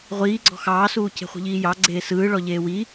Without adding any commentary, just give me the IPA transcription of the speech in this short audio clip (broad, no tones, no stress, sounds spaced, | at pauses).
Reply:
ʁʷ iː ɡ͡ǀ ɔ̤ x ɑː s uː cʰ e̤ χʷ i̤ ʎ iː j ɑ ɡ͡ǀ eː s ɯː ɭ ɔ ʎ eː w i